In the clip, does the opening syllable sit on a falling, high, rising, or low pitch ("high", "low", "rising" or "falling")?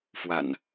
low